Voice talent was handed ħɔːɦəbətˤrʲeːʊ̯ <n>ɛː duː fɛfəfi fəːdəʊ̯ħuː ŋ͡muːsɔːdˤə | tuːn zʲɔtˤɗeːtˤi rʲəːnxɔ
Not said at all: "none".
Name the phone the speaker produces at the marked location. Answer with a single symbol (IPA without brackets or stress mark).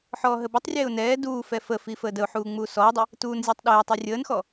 n